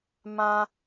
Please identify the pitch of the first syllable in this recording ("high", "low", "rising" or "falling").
high